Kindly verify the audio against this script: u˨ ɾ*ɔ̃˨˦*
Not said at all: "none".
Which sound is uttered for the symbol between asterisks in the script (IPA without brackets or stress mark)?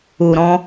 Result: ɔ̃˨˦